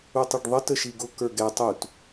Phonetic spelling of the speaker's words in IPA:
u tˤ i ɖ ðˤ ə t ə ʃ i ɡ ʊ k ə˞ ɡ ɛ tˤ u t

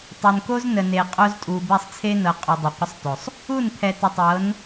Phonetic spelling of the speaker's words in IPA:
tˤ e˨ n k o˦ z n ə˨ n e˨ qʼ o˦ z tʼ u˨ b ɛ˦˨ sˤ t͡sʰ e˦ n ɤ˨ qʼ u˨ dˤ ɤ˨ qʷ ə˦ sˤ t o˨ sˤ | u˦˨ n pʰ ɛ˨ t ə˨ tˤ ɤ˨˦ n

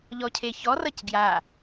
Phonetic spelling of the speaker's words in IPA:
ʎ ɔ cʰ e ç ɔ r ʌ c ɡ j a

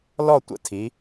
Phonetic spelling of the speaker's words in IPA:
l ɔ˥˧ tʷ ə̰˥˧ tʰ i˩˧

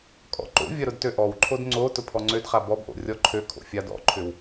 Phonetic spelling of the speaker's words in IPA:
kʼ ɔ̰ ǃ o̰ vʲ ɐ ɾ ʊ d t ø ʔ ɔ w ǃʰ o d ŋ͡ǀ o t ʊ pʰ ɔ ŋ͡ǀ ø d χ a b ɔ b ʔ o̰ rʲ ɔ ǃʰ ø kʰ o̰ fʲ a d ɔ̰ ǃʰ ʏ w

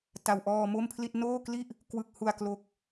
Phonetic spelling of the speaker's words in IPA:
t a˩˦ w ʔ ɔː˧ m o˥˩ m pʰ l i˥˩ t̚ n oː˥˩ k l i˥˩ ʔ | k w ɯ˨˩ k̚ h u˨˩ a̯ k l o˨˩ k̚

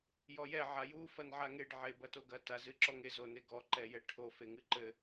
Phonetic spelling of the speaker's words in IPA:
j ɔ j ɛ ʕ a j u f ɐ n ʕ a ŋ e ɖ ʕ e b ɐ t o ɡ ɐ t a z ɨ ǁ ɔ ŋ e z o n e ɡ ɔ ǃ ɛ j ɛ ʈʰ o f e ŋ ɨ ǃ ɘ

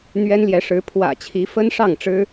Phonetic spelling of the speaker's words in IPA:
n̪ ɥ ɛ˥ n l j ɛ˧˥ ʂ ɻ̩˧˥ pʰ w ä̰˨˩ t͡ɕʰ i˧˥ f ə˥ n ʂ ɑ˥˩ ŋ ʈ͡ʂ ɻ̩˥

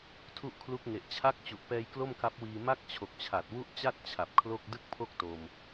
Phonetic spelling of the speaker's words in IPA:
tʰ u˥˩ ʔ kʰ l u˦˥ k̚ ŋ e˨˩ ʔ t͡ɕʰ a˦˥ k̚ t͡ɕ u˨˩ ʔ p ɛː˧ j k l o˥˩ m k a˦˥ p̚ w iː˧ m a˥˩ k̚ t͡ɕʰ o˨˩ k̚ t͡ɕʰ a˨˩ t̚ w u˥˩ ʔ t͡ɕ a˥˩ t̚ t͡ɕʰ a˨˩ p̚ kʰ l o˥˩ k̚ d ɯ˥˩ k̚ pʰ o˥˩ k̚ t o˧ m

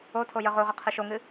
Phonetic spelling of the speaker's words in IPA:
o tʰ o j ə ʁ o ʁ ə qʰ ɨ ʃ o ŋ ɨ

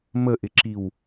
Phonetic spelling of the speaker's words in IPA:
m ə ʔ ɪ ǁ i w

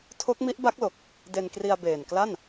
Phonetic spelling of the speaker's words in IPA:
tʰ o˦˥ k̚ m i˦˥ ʔ b a˦˥ k̚ l o˨˩ k̚ | d e˧ n k r i˧ a̯ b eː˨˩ n k l a˥˩ n

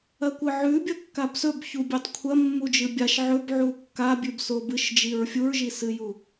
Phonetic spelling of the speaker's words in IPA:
ɐ kʷ ɨ ʕ ʉ bʲ ɐ kː a b s ɵ b ç u bʲ ʉ tˤ kʷʰ ɐ mː u d͡ʒ ɨ bʲ a ʃ ʕ ɵ b ʕ u kː a bʲ ʉ b s o b ɨ ʃ d͡ʒ i ɹ fʲ u ɹ ʒ i s ɨ j u

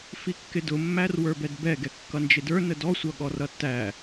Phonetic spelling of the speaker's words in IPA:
f i kː ɪ d ʊ mː æ r w ə˞ b ɛ d b ɛ ɡ ɛ kː ʌ n d͡ʒ ɪ d ə˞ n ə d ɔ sʷ ʌ ɠ ɔ r ʌ tː æ

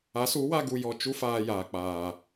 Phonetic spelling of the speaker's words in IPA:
a˨˦ s u˨˦ w a˦ ɡ u˧ j ɔ˧ t͡ʃ u˦ f aː˧ j aː˨ k͡p aː˨

